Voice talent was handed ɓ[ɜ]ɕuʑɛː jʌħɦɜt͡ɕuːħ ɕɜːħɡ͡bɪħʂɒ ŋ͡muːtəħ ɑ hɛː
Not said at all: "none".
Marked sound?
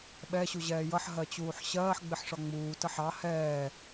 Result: ɛ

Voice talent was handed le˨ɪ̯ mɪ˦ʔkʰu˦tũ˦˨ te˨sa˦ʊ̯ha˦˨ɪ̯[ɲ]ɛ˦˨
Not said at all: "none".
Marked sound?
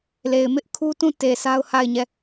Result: ɲ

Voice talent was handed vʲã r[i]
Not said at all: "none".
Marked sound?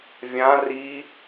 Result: i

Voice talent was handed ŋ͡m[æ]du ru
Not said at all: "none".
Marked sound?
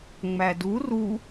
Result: æ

